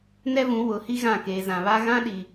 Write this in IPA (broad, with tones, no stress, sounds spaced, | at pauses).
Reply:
n ɛ˦ v ũ˨˦ w ʊ˨˦ h i˦ ɣ ã˦˨ k eː˨ z ã˨ β a˦ ɣ ã˦ ɗ i˨